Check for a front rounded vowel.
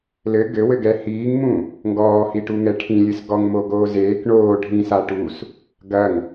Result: absent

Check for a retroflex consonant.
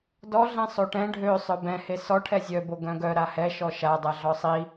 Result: present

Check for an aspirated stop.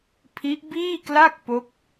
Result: present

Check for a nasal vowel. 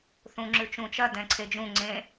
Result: present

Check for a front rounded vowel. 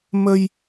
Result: absent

